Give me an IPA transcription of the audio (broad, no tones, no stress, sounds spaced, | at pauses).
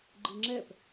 ɡ͡ǃ ɨ ŋ͡ǁ ɛ p